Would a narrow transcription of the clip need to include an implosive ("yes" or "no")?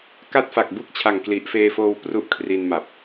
no